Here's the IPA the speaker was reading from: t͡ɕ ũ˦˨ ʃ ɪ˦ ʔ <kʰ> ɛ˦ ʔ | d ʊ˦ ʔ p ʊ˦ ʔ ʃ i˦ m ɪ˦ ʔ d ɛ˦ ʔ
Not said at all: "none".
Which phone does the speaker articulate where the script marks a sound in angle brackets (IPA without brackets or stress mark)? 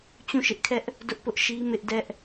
kʰ